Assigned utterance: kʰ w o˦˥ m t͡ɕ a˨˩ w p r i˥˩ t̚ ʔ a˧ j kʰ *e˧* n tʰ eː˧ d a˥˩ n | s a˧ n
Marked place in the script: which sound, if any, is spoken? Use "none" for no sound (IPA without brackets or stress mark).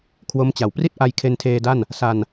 e˧